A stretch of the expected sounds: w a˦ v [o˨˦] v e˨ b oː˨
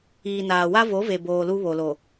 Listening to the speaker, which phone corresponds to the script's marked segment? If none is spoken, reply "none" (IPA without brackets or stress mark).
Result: o˨˦